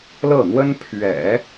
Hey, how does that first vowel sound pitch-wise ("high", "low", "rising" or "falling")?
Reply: falling